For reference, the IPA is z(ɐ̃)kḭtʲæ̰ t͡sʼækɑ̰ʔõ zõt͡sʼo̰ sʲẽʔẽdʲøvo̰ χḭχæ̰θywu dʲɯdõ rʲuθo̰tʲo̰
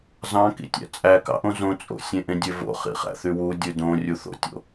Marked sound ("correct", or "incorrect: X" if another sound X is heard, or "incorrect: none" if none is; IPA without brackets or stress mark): incorrect: ɑ̃